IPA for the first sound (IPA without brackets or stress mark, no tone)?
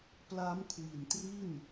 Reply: p